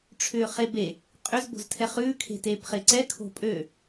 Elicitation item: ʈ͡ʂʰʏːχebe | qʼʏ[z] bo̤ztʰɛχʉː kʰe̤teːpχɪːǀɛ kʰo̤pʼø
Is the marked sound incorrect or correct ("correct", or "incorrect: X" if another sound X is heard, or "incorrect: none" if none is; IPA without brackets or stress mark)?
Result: correct